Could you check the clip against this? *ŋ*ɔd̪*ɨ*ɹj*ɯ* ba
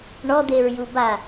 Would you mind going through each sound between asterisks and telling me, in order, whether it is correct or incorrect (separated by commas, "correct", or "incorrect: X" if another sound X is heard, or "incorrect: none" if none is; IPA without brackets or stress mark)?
incorrect: ɳ, incorrect: e, incorrect: u